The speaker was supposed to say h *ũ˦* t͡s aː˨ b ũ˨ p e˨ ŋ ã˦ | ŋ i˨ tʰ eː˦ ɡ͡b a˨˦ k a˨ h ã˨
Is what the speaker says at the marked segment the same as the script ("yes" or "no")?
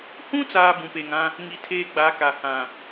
yes